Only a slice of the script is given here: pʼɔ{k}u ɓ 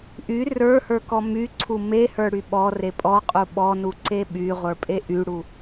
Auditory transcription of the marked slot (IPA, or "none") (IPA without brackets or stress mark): qʼ